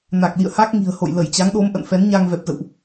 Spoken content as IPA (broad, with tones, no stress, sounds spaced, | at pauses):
n a˨˩ k̚ l ḭ˧˨ ə̯ h a˦˥ k̚ ŋ i̤˨˩ ə̯ h o̰˧˨ j l ə˧˩ j t͡ɕ a˨˦ ŋ ɗ o˨˦ m ʔ ə̰˧˨ n f ɛ˨˦ n ɲ a˧ ŋ v ɛ˨˩ p̚ z ə̰˧˨ w ʔ